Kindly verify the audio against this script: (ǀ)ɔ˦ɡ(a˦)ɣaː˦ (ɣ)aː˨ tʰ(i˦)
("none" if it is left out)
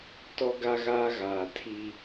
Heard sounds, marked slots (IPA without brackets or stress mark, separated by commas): t, a˦, ɣ, i˦